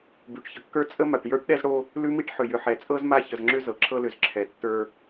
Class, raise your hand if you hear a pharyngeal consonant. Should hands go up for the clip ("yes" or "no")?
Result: yes